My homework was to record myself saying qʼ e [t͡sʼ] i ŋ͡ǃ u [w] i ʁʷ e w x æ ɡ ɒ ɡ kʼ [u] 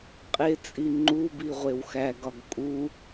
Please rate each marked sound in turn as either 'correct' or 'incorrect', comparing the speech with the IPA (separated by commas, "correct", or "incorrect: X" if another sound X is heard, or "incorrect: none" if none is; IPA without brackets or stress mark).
correct, incorrect: b, correct